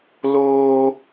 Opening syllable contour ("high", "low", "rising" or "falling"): high